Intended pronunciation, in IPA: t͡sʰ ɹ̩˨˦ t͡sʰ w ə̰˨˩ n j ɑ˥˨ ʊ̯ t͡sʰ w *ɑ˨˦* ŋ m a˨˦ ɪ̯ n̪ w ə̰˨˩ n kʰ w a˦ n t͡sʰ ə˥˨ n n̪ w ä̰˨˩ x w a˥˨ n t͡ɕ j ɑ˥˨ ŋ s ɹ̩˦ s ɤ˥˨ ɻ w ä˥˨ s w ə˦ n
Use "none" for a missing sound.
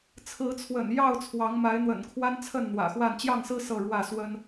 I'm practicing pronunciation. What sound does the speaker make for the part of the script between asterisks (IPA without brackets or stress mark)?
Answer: ɑ˨˦